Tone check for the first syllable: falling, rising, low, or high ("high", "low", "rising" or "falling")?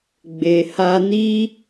low